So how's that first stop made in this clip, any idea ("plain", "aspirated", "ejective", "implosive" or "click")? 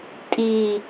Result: ejective